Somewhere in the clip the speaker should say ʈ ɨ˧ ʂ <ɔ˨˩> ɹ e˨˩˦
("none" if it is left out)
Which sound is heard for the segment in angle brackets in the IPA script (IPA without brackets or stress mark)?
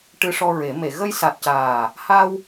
ɔ˧